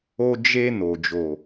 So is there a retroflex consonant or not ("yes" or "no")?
no